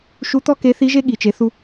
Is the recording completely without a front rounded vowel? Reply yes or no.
yes